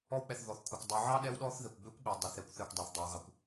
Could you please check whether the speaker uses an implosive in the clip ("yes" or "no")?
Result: yes